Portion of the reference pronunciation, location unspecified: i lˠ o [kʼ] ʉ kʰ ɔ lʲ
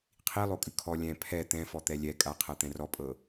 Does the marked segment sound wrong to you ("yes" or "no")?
no